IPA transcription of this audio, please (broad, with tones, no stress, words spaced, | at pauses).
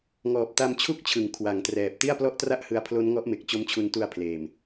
ŋɔː˨˩p̚ta˧mt͡ɕʰu˥˩k̚t͡ɕʰɯ˩˦ŋ kʰwa˩˦ŋtrɛː˨˩p̚ ti˥˩a̯plɔ˥˩ʔtra˥˩ʔhɯ˧a̯ pʰlo˦˥nŋɔ˦˥ʔme˨˩k̚ t͡ɕo˦˥mt͡ɕʰu˧ntu˧a̯pʰleː˨˩m